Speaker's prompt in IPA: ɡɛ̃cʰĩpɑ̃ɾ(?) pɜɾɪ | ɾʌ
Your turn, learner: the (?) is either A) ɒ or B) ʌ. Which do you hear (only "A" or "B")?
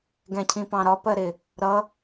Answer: A